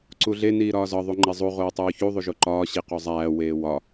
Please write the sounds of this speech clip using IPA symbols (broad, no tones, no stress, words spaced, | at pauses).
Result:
ǀuɮe niːɾɒːzɒ ðˤuŋ͡ǃezˤu ʁoːtˤuːçu ðˤuʒoǃɒː ɕiqozˤæː weːwɒ